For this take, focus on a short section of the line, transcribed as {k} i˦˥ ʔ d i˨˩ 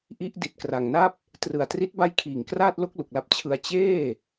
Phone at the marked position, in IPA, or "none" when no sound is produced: ʔ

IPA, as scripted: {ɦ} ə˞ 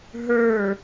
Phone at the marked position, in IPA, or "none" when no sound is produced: ɦ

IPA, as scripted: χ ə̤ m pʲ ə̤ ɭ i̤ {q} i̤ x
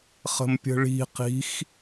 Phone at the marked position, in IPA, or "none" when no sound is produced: q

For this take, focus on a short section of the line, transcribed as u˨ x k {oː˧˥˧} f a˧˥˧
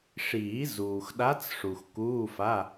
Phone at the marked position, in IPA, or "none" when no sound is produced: uː˧˥˧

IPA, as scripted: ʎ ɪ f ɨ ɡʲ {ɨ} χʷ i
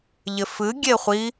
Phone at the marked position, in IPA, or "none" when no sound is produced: e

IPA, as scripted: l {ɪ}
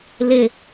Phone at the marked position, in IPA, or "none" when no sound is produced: ɪ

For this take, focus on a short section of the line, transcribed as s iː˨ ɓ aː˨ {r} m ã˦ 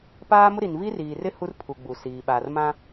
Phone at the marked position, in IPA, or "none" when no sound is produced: r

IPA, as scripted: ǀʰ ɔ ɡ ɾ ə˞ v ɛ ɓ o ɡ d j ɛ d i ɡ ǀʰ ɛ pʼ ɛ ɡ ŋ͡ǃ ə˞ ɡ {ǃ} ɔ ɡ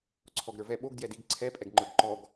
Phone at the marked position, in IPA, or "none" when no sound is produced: ǃ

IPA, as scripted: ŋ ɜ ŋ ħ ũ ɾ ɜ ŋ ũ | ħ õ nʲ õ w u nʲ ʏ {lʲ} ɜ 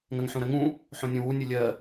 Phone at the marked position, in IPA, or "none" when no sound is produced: lʲ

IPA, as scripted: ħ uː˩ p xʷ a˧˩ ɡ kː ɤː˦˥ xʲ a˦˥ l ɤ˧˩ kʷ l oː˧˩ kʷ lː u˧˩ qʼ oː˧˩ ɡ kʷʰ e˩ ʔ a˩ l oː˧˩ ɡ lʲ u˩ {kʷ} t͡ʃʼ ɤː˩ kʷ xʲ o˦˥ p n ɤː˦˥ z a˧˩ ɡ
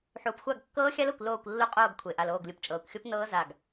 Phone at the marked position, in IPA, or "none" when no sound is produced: p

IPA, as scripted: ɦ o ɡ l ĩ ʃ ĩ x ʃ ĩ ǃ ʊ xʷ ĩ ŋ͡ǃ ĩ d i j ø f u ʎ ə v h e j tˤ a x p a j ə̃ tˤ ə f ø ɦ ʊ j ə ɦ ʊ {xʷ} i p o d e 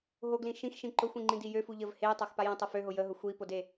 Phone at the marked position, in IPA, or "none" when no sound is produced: xʷ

